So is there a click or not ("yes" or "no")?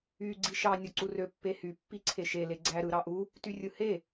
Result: yes